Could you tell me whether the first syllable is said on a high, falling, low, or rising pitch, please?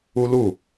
high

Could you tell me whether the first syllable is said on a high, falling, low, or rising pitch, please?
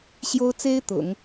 high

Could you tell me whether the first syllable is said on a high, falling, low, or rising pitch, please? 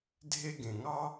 high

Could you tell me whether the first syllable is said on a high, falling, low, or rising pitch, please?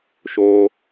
low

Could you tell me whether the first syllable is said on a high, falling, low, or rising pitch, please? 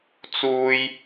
high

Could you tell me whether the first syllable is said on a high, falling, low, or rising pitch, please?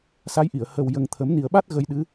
rising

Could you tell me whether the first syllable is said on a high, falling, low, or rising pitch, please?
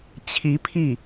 rising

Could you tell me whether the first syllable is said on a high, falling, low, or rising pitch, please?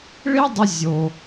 high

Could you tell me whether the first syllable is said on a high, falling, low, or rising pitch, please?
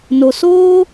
low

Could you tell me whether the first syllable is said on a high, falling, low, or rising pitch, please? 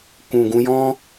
low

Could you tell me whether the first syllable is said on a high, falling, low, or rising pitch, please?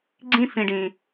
high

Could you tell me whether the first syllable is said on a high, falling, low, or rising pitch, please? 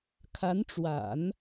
rising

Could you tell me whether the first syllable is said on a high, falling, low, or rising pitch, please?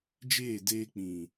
falling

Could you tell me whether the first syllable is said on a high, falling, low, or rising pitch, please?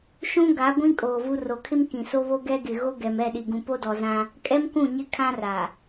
high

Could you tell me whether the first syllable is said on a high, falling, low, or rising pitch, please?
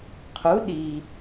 rising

